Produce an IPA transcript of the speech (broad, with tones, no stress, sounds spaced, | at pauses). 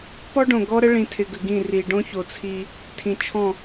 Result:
p ɔ˦ ɖ õ˨ ɡ ɔ˦ ɾ ə˦ ɭ ĩ˨ tʰ ɪ˨ ɡ ə˨ ɡ ĩ˦˨ r i˨ ɖ õ˦ ç o˨ t͡sʰ i˦ | tʰ ĩ˨ t͡ʃʰ ɔ̃˦˨